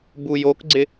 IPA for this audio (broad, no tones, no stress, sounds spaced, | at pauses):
b u j o k ɡ͡ǀ ɪ